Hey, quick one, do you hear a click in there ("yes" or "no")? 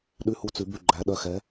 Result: yes